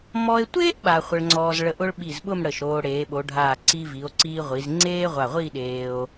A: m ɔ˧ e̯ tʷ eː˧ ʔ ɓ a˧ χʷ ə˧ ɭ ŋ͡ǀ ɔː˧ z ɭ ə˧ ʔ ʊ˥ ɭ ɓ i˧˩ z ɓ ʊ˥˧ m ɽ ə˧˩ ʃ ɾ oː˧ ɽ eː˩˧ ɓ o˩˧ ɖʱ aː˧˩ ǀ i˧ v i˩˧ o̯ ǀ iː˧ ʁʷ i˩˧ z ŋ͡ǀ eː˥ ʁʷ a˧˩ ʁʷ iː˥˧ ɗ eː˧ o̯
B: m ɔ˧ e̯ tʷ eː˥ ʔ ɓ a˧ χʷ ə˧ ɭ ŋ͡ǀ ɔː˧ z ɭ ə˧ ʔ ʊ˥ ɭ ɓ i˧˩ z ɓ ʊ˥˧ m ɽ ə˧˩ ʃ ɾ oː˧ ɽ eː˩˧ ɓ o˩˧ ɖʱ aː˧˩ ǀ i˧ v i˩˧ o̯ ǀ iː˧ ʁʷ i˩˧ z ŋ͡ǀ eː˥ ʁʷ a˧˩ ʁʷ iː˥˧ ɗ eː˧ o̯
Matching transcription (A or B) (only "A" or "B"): B